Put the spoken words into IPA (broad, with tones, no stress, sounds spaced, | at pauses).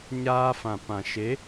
ɲ aː˧ f ã˨ p ã˨ ʃ e˨˦